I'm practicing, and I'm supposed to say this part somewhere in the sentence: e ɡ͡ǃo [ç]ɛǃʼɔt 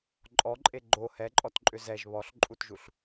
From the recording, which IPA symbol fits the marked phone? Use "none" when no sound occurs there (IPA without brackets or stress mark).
h